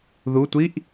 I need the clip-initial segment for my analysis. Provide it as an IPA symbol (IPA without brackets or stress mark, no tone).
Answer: ð